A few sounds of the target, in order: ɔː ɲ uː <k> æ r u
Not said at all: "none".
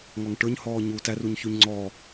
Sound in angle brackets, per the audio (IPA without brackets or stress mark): t